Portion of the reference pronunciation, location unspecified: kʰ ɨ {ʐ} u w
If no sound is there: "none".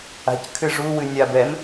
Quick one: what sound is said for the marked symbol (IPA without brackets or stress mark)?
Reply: ʐ